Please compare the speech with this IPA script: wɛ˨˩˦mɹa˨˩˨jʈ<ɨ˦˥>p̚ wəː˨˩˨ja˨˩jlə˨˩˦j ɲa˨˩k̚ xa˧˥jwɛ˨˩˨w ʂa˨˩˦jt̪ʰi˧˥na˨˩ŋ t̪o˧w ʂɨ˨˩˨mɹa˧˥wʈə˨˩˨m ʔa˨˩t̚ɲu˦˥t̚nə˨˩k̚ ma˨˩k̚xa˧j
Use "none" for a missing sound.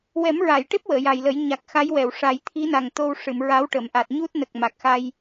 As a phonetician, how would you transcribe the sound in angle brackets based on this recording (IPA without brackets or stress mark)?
e˦˥